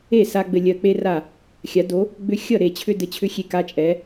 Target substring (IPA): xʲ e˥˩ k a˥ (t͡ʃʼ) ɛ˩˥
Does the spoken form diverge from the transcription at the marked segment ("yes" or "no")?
no